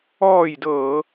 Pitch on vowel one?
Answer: falling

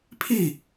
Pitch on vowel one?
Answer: falling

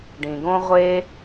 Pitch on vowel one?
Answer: low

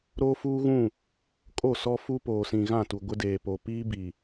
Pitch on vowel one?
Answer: high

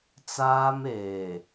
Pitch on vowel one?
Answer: high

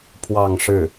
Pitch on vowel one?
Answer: falling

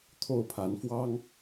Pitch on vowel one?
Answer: falling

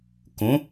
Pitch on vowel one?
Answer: rising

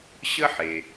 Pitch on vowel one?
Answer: high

